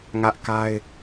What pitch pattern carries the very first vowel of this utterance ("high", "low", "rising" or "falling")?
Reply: high